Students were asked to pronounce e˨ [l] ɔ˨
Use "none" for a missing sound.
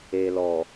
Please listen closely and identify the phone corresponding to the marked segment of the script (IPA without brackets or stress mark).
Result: l